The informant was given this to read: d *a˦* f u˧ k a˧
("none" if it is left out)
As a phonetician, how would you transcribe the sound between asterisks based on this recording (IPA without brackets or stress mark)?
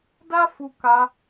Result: a˦